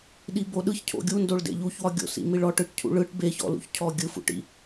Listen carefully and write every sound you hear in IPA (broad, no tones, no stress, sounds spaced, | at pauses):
ɗ i b o ɗ ɯ ç cʰ o̰ ɡʲ u n d o ɭ d ḛ ʎ u ç w ɒ ɡʲ o̰ s ḭ m i ɭ ɔ ʈ ɯ ʈ cʰ ṵ ɭ ɯ ʈ b e ç ɔ̰ l ṵ ç cʰ ɔ ɡʲ ɯ f ṵ ʈ ḭ